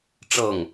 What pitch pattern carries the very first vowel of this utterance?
falling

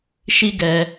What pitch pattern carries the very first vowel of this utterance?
high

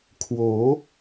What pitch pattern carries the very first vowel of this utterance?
rising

